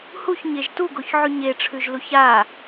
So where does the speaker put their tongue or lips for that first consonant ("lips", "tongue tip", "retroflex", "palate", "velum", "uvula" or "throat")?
throat